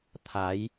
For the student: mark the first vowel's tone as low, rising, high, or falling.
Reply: rising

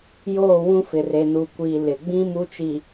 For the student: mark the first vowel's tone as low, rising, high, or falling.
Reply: falling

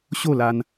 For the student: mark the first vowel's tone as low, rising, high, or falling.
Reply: falling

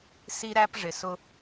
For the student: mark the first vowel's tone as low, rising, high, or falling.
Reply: high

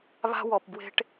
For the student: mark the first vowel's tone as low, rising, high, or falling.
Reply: high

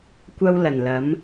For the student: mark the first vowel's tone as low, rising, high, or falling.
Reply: high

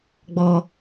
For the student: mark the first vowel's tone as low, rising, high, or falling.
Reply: high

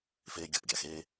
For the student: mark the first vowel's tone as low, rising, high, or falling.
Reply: high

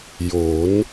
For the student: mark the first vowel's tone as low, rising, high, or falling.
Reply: rising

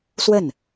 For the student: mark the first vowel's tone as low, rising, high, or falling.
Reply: falling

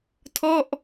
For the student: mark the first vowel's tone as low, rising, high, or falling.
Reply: falling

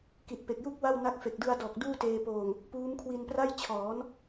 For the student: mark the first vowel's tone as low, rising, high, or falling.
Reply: low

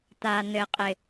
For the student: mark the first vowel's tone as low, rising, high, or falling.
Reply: low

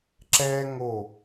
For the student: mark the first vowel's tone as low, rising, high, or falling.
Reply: high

